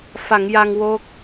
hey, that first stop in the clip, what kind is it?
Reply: plain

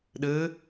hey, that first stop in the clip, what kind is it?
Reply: implosive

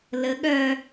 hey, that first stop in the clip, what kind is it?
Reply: implosive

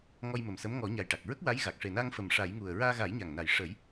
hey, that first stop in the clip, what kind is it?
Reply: plain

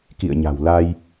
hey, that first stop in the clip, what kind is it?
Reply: plain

